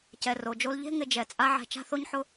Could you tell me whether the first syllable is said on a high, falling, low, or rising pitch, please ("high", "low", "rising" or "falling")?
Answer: low